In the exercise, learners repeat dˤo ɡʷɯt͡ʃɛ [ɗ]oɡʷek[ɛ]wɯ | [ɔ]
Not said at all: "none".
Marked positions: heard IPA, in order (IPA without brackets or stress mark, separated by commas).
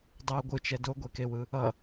d, e, ʌ